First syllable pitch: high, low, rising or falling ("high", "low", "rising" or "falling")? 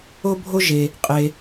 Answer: high